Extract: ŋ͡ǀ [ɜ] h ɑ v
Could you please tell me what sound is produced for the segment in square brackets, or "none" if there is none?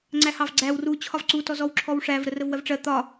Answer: æ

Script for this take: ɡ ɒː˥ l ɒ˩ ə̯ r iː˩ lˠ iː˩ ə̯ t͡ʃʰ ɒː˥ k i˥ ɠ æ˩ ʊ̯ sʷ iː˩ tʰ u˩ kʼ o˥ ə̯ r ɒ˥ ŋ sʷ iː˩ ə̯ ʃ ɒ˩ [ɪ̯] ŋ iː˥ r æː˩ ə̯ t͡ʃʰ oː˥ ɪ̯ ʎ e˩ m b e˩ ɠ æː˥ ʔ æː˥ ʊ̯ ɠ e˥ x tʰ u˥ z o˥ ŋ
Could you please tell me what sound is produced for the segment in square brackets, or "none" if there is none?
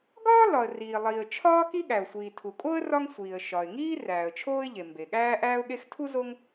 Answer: ɪ̯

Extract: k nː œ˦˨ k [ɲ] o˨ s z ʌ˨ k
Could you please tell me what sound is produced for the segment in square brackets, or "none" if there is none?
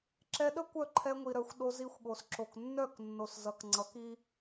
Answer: nː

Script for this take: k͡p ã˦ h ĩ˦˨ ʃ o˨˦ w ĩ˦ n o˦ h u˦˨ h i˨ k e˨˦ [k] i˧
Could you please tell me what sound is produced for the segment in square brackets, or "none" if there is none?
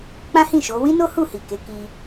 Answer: k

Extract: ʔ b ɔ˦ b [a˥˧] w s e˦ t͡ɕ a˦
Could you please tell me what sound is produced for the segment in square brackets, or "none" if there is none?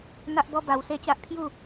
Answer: a˧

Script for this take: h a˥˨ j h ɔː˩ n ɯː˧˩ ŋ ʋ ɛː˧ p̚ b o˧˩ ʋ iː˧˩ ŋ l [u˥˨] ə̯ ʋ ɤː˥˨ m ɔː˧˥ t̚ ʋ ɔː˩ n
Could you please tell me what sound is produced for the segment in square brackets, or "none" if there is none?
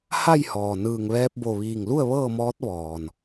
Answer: u˥˨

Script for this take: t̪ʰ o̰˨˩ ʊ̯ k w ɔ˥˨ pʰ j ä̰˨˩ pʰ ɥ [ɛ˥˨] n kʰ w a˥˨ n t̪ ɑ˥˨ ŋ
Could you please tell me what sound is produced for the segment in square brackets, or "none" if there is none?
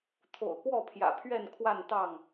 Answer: ɛ˥˨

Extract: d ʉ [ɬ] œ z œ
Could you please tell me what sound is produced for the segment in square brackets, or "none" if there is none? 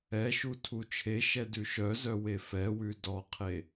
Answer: ʃ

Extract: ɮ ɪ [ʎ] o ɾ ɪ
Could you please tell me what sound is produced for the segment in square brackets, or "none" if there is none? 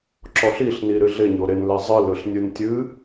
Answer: ɲ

